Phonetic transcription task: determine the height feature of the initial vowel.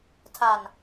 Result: low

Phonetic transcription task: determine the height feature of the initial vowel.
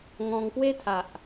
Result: mid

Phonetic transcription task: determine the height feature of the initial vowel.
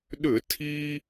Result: high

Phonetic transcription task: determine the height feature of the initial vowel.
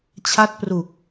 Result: low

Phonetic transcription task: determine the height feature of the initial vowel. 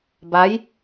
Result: low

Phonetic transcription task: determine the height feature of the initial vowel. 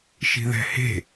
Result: high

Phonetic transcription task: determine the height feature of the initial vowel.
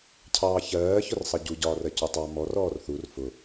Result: low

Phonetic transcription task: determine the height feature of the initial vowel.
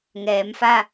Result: mid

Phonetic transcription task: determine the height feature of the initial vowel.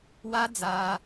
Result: low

